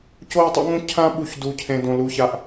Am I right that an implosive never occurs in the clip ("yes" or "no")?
no